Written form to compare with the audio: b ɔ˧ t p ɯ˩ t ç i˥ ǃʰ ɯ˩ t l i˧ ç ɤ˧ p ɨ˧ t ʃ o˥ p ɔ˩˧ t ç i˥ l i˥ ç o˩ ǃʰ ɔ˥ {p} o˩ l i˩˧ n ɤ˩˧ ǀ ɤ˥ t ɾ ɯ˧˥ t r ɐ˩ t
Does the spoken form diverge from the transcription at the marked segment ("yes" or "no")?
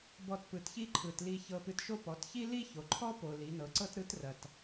no